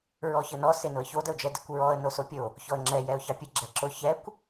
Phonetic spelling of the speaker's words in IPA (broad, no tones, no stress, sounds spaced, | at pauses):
ɹ ɔ ç ə n ɔ s e n ʊ ə̯ ç o d ə ʊ̯ d͡ʒ ɛ d ɪ kʷ ɹ ɔ ə̯ n o s o pʲ o | ç ɔ ə̯ ŋ͡ǁ ɛ j ɛ ʊ̯ ç ɑ pʲ ə ɡ͡ǁ ɛ ǁ ʊ ç ɛ kʷ